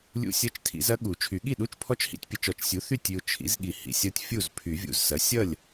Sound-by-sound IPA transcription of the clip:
lʲṵ˦˥sʲɐ˧˥˧t͡ʃtʰḭ˨˩˦zɐ˦˥ ɠu˨˩˦t͡ʃʰy˨˩˦ ɠi˥˩ɗu˧˥˧t͡ʃpʰɔ˦˥t͡ʃ hḭ˦˥tʲpʲɐ˨t͡ʃɔ˨˩˦t͡ʃsʲu˩˥ θy˥˩tʲy˨ʊ̯ t͡ʃʰḭ˩˥zɠi˨ hḭ˨sʲʌ˦˥tʲ fʲu˥˩z pʰy˨˩˦vʲṵ˨zsɐ˩˥ sʲʌ˥˩lʲ

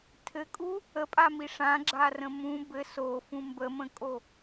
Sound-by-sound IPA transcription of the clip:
tʰɘkʼu | əpʼami ʂãɡ͡ǁarə̃ mũ bɘ sofũ mbəmə̃kʼo

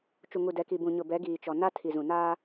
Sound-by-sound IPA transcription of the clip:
t͡ʃu˨ŋu˨dɛ˨ ki˨bũ˨ɲʊ˨ bɛ˨˦ɡiː˨t͡ʃɔ˨ na˦tʰi˨zũ˨naː˦

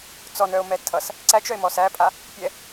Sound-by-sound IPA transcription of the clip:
t͡sɔnœo̯mɛ tʰʌs | ǀæt͡ʃœe̯mɔs æpʼa | pʲɛ

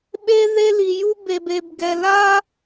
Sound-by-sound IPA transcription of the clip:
ɓe˦ ðe˦li˨ ju˦be˨be˨bɡɛ˨ la˦

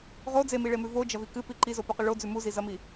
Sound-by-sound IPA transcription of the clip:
ʁo d͡zemiɭemʉ vod͡ʒɐvi kɨpi ǃizopɵqʉ ɭod͡zʉ muzizɐmi

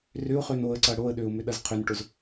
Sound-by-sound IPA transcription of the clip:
rʏʊ̯χøn oə̯ǀɐ ɽoə̯ɗøʊ̯ mʏɗɐzqʰʏnʈʊz

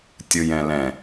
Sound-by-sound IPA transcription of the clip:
tʲɯjɛ̃lɛ̃

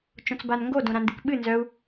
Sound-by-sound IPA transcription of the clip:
t͡ʃõt͡sbanŋɡo dõɾãndɨkɓɨ nzœu̯

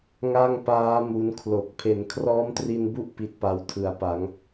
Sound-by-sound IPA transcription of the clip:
ŋa˥˩ŋpaː˦˥ mu˦˥n kʰlo˨˩k̚ pʰe˩˦nkʰrɔː˦˥mtri˧nbu˦˥ʔ pi˦˥t̚pa˧w tʰɯ˩˦a̯pa˩˦ŋ

